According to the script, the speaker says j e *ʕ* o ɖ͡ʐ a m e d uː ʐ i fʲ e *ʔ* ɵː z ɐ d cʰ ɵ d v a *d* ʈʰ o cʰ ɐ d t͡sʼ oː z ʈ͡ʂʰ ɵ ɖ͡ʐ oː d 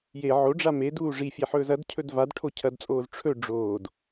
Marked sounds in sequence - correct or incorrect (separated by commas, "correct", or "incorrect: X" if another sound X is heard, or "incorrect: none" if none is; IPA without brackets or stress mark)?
correct, incorrect: ħ, correct